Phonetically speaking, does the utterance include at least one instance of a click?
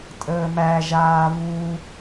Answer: no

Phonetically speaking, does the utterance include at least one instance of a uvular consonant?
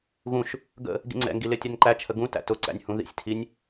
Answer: no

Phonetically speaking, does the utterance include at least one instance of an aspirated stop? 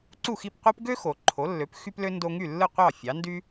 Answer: yes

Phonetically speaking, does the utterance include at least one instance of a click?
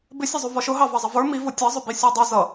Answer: no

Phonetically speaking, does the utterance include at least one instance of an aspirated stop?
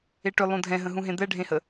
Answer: no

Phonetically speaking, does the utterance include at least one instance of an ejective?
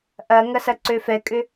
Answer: yes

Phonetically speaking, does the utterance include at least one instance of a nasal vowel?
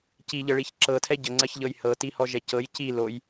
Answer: no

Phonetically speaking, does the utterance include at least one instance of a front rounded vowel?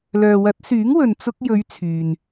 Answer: yes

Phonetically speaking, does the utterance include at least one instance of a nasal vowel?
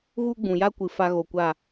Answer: yes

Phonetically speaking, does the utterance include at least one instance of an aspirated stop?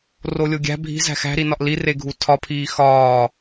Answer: yes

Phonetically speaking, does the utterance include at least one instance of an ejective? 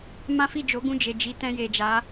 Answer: no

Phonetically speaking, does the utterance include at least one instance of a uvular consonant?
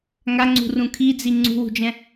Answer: no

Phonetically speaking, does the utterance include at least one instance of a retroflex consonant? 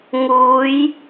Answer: no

